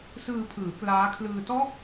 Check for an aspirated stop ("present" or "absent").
present